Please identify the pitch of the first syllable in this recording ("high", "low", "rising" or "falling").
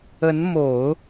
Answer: rising